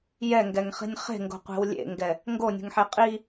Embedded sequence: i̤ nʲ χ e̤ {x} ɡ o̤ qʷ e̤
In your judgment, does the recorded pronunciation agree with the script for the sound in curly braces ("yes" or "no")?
no